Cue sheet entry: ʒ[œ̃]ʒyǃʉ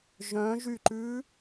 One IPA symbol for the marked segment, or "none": œ̃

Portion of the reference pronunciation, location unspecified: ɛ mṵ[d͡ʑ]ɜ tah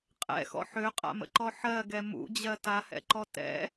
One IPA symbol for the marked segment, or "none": d͡ʑ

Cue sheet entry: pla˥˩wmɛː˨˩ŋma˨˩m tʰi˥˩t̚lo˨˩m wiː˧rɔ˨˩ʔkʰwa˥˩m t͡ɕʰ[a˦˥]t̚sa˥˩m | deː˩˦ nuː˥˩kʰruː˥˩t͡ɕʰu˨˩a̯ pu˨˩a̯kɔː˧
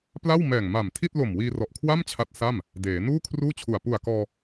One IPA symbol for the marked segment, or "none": a˦˥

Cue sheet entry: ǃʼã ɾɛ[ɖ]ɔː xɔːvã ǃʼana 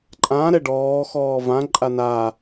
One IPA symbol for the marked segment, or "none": ɖ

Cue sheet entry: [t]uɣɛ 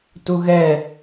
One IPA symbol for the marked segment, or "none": t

